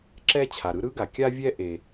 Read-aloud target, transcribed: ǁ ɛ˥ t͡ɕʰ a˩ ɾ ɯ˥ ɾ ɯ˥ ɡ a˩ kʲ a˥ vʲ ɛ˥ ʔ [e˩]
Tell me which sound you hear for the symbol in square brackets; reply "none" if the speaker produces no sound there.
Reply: e˩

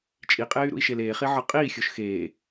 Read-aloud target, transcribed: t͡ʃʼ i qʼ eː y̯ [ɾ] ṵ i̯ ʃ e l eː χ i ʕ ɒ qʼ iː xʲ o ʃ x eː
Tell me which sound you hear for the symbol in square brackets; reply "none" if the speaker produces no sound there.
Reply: ɾ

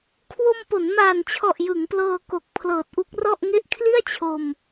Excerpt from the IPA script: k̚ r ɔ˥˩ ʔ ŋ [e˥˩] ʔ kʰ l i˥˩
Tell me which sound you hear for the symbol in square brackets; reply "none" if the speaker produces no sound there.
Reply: e˥˩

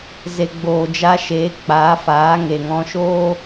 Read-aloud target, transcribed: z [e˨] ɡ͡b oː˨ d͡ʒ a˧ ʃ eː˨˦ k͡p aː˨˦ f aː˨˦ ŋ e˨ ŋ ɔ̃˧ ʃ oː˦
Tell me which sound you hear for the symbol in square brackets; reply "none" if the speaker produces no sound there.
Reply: e˨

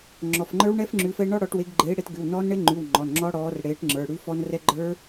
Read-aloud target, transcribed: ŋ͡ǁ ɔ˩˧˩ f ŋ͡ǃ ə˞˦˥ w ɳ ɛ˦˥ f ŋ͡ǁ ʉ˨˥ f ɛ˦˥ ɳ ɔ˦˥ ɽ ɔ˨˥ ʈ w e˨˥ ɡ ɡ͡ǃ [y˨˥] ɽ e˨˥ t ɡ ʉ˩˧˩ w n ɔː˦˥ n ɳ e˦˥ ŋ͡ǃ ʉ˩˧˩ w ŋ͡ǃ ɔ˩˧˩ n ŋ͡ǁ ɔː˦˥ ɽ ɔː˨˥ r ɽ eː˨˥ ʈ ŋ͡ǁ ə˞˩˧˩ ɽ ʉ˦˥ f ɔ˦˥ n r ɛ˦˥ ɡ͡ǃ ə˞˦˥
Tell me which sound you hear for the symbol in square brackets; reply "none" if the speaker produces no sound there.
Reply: e˨˥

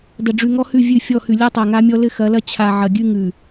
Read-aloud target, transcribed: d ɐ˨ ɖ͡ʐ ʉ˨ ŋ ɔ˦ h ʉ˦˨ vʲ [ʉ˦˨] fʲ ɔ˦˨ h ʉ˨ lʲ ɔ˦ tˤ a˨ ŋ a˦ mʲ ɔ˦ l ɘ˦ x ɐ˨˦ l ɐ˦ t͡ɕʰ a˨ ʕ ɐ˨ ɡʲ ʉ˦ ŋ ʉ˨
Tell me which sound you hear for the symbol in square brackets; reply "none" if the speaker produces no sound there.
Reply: ʉ˦˨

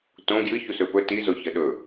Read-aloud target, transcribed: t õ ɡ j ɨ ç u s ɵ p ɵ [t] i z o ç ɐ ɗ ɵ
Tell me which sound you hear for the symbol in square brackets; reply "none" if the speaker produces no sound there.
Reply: t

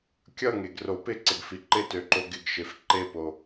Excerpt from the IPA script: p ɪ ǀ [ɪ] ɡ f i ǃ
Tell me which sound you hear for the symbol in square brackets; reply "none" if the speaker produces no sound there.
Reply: ɪ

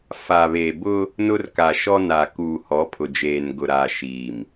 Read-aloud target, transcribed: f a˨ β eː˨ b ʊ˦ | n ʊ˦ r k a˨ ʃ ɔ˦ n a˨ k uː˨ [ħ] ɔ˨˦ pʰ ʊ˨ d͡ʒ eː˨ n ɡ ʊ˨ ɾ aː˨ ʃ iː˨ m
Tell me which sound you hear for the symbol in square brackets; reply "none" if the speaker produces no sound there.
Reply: h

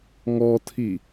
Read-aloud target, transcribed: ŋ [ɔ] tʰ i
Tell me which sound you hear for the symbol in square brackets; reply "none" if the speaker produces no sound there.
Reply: ɔ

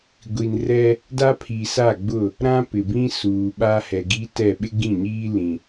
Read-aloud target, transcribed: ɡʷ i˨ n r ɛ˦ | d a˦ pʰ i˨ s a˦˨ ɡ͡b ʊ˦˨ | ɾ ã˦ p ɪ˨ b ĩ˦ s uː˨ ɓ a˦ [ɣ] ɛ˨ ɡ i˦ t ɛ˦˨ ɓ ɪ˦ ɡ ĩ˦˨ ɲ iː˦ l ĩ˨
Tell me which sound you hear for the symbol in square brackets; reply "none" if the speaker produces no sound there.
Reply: h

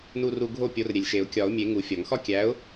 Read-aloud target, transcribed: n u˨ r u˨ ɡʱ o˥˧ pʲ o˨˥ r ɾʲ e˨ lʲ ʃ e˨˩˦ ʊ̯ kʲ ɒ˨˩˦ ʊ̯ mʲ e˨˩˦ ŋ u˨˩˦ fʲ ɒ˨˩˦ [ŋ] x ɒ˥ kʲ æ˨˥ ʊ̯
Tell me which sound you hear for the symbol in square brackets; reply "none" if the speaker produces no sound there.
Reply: ŋ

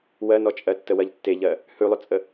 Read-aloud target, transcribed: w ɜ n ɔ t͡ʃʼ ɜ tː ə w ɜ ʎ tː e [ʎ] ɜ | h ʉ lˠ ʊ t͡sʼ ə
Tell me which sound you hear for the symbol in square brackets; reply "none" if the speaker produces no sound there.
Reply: ʎ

